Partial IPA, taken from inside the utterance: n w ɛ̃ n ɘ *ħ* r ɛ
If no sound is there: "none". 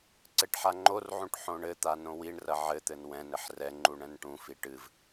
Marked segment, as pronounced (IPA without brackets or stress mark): ħ